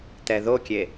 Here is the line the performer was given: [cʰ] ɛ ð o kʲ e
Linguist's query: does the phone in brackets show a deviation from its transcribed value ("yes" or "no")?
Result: yes